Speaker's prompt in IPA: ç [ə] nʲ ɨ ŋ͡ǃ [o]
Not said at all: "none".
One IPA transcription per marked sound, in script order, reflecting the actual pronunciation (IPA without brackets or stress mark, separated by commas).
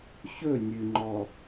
ɵ, ɔ